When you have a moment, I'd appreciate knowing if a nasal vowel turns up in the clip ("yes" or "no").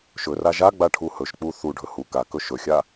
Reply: no